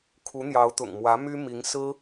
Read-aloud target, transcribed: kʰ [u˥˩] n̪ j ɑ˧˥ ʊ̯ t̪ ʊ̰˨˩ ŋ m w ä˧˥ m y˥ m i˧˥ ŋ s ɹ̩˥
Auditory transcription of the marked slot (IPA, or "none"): u˧˥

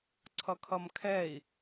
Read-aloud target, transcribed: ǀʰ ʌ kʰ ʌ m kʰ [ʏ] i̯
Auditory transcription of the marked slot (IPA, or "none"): ɛ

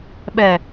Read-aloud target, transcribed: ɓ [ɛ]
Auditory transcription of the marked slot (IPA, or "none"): ɛ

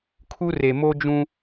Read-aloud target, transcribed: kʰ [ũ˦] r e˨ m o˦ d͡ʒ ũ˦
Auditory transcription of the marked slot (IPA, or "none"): u˦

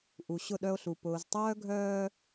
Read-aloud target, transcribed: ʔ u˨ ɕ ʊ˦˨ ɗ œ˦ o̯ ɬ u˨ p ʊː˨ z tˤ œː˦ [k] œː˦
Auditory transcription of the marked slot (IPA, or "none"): ɡʱ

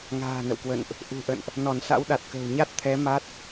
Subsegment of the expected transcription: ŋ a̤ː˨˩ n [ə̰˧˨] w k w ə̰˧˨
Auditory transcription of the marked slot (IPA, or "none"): ə̰˧˨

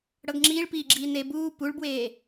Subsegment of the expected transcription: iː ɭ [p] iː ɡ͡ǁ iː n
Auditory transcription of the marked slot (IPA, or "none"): p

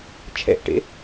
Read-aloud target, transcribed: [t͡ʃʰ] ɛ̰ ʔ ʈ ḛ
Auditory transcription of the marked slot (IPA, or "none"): t͡ʃʰ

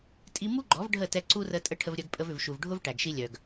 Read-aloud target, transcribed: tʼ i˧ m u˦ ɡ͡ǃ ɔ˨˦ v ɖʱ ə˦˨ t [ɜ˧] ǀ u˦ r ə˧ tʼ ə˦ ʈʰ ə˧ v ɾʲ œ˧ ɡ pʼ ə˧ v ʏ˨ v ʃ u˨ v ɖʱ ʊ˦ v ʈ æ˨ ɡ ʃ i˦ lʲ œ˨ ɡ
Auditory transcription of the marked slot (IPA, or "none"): ɛ˧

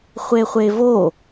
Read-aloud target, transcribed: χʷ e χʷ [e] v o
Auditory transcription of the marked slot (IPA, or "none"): e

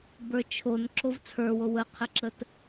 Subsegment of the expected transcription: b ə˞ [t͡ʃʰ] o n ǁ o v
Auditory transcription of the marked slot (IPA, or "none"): t͡ʃʰ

